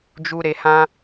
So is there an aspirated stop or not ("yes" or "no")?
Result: no